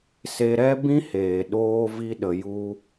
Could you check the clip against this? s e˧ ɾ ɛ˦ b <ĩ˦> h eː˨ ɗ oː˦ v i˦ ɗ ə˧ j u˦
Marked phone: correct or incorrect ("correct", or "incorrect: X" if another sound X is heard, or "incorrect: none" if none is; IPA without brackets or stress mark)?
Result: correct